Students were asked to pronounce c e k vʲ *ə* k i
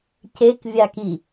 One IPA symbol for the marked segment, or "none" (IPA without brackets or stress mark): a